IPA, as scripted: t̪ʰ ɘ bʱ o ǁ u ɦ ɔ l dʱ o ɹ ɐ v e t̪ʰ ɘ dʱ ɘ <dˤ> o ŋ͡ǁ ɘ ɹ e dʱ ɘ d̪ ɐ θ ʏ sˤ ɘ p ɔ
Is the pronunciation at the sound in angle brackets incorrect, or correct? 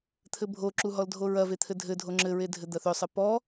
incorrect